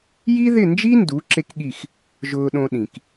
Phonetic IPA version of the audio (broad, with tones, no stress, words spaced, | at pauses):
ji˥ðɪ˥˩nd͡ʒi˥ndu˩˥ ǁe˥kɠi˥˩x | ʒʊː˧ɗõ˧ɗĩ˩k